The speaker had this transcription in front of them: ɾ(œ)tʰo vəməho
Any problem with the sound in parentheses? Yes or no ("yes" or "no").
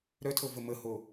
no